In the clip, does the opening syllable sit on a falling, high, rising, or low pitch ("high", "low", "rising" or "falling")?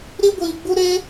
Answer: high